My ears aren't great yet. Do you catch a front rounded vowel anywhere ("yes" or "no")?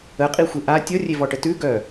yes